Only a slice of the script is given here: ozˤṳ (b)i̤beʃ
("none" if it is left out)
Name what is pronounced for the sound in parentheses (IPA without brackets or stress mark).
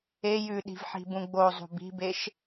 b